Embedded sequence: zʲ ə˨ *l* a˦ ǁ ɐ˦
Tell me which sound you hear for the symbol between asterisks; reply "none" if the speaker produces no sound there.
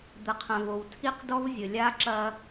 lʲ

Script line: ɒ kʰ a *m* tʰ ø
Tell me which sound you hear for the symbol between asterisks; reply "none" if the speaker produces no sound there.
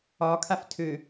f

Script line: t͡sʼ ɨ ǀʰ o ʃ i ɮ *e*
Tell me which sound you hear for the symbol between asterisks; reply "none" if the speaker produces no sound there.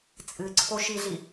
i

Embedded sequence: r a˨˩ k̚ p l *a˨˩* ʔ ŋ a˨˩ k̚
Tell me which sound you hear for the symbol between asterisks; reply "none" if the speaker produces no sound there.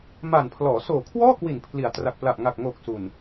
a˨˩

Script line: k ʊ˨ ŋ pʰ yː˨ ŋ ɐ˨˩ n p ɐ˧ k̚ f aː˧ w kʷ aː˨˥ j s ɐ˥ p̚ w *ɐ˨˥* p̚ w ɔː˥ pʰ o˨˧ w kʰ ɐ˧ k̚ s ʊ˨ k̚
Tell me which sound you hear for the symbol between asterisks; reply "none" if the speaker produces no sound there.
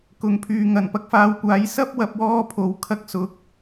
ɐ˨˥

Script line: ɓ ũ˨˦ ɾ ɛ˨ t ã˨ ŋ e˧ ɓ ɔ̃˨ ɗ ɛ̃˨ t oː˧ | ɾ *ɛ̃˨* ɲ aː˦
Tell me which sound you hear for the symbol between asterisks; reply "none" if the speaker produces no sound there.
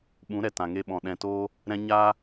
ɛ̃˧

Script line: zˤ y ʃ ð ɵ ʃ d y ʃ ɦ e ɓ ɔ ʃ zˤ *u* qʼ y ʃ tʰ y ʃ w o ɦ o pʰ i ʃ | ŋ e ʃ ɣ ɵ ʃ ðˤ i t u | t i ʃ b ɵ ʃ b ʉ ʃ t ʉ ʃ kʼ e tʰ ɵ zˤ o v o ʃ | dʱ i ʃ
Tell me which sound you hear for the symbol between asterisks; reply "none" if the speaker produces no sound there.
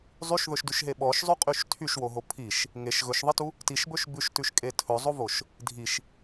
ʉ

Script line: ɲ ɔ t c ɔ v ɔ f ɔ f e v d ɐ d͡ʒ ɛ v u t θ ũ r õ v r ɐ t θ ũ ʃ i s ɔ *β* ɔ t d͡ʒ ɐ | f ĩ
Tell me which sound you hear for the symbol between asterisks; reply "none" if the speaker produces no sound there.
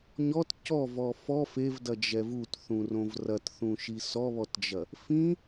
β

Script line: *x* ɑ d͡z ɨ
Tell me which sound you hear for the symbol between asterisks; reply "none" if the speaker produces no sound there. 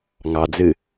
ŋ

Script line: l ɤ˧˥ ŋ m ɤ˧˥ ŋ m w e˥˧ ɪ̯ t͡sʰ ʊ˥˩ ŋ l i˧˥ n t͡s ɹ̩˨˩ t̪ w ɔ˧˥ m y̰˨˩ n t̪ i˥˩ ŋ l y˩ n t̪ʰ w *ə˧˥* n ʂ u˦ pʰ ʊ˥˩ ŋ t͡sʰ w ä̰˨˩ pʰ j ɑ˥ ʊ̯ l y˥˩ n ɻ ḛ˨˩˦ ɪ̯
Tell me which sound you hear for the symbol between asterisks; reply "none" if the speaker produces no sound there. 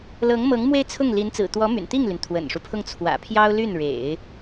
ə̰˨˩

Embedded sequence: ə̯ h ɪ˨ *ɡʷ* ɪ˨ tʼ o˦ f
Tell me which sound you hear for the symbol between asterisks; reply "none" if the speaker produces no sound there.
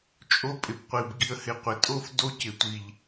qʷ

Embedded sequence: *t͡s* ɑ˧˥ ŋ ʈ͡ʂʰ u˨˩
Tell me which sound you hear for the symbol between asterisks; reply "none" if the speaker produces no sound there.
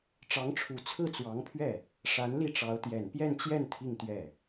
ʈ͡ʂ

